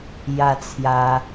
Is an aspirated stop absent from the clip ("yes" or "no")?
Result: no